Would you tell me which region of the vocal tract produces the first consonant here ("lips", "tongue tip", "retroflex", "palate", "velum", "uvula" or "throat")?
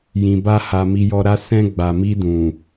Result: palate